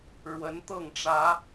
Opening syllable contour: rising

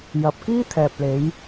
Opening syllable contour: low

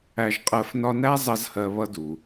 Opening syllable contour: low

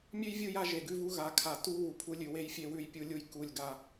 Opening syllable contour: high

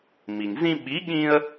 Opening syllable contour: low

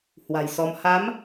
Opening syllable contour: low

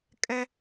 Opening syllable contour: high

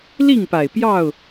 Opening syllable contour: falling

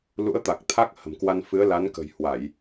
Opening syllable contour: rising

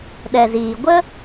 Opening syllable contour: low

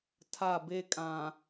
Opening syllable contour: falling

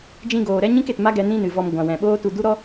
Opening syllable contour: high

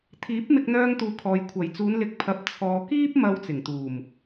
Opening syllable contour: rising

